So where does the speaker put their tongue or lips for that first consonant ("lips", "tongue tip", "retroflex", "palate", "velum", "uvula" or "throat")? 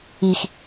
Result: velum